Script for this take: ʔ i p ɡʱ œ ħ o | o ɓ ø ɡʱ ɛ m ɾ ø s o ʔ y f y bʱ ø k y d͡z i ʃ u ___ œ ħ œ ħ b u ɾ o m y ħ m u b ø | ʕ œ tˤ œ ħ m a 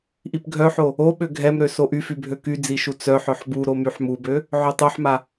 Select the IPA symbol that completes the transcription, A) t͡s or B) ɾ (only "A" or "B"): A